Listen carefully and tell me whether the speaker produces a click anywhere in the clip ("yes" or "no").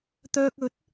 no